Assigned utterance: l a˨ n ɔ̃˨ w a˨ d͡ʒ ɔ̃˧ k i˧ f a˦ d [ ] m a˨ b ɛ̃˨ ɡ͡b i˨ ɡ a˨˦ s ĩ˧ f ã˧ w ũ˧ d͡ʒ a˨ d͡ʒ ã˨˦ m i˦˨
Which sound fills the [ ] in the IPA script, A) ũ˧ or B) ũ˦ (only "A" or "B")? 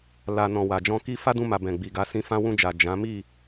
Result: A